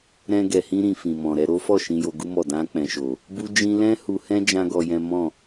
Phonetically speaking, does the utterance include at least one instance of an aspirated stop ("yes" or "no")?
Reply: no